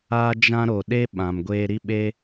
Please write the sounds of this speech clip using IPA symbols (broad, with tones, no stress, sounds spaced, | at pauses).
aː˦ d͡ʒ ã˦ ɾ o˨ ɗ e˦ ɓ ã˨ m ɡʷ eː˧ ɾ i˦ ɓ e˦